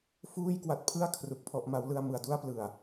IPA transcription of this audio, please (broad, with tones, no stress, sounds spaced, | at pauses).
f uː˥˩ j k w a˦˥ t̚ pʰ ɯ˥˩ a̯ kʰ r u˦˥ k̚ pʰ ɔ˦˥ ʔ m a˦˥ w l ɯ˧ a̯ m ɯ˩˦ a̯ d u˥˩ a̯ p l ɯ˨˩ a̯